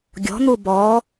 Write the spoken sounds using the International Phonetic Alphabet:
ɡʲ ɔ̤ n̪ u b ɔ

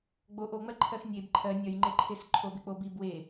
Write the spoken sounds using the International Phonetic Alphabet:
ɡ͡b o ʔ o ŋ͡m ɜ ǃʰ ɜ x nʲ e b ǃʰ ɜ nʲ œ j ŋ͡ǃ e ǃʰ e s ǃʰ o b e k͡p o b i b w e

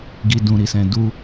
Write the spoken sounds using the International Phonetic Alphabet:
ɡ i˨ d ũ˨ ɾ i˨ s ɛ̃˨ d u˧

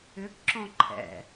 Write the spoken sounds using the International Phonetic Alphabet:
ʏ ɡ ǁ ɔ̃ ǃʰ ɛ̰

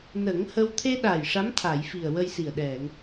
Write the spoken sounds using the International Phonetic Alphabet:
n ə˨˩˦ ŋ h ə˧ w t̪ʰ e˧ ɗ a˨˩ j ʂ a˧˥ m t̪ʰ a˨˩˨ j f i˨˩ ə̯ w ə˧ j s i˨˩ ə̯ ɗ ɛ˨˩˨ ŋ

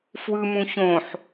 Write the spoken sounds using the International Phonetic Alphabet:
f w ɯ m ũ ç õ ħ

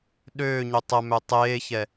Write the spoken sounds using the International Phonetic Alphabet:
ɗ øː ɲ ø tˤ ə m ø tˤ eː ç ɛ

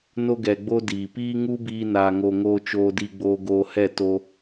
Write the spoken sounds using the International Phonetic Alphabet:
n o˧ ɡ ɛ˨ ɡ͡b o˧ d iː˨ p iː˦ ŋ u˦ b iː˧ n aː˨ ŋ o˨ ŋ oː˧ t͡ʃ oː˧ d i˧ ɡ͡b oː˧ ɡ oː˧ h ɛ˦˨ t o˧

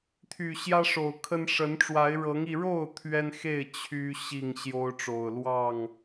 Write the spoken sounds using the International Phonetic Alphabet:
t̪ʰ y˨˩ ɕ j ä˦ ʂ o˨˩ ʊ̯ kʰ ə˦ n ʂ ə˨˦ n ʈ͡ʂ w a˨˦ ɪ̯ ɻ ɤ˨˦ ŋ i˧ ɻ o˥˨ ʊ̯ t̪ʰ ɥ ɛ˦ n x e˥˨ ɪ̯ t͡ɕʰ y˦ ɕ i˥˨ ŋ ɕ j o˦ ʊ̯ ʈ͡ʂ o˨˩ ʊ̯ l w ɑ˥˨ ŋ

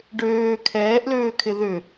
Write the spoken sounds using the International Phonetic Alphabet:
ɖ øː kʰ ɛː ʔ l øː kʰ ɪ ð ʏ

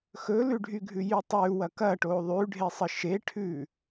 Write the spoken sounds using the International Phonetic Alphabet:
x ɵ l ʉ ɖʱ y ɡʱ ʉ j y tˤ ʉ w ɐ k ɐ ʈ o ðˤ ʉ ɖʱ e sˤ ə ʃ e ʈʰ ʉ

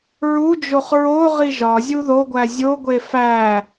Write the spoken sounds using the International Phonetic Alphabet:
ɹ u d͡ʒ o χ ɹ o ʁ i ʒ ɒ zʲ u ð o ɡʷ æ zʲ o ɡʷ e f æ

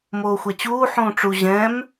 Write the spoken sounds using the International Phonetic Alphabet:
m oː xʷ ɛ t͡ɕ uː ħ ũː ʈ͡ʂ u ʑ ɛ̃ m

